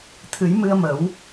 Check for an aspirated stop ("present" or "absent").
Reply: present